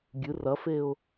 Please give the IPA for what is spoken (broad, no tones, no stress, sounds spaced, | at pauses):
ɡʲ ɨ r ɐ f e ʊ̯